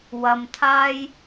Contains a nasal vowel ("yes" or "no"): no